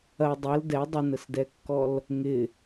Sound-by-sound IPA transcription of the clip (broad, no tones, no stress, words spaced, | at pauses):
ɐ dˤɐl dɛ dˤənəsdɛkːɔl | ŋɪ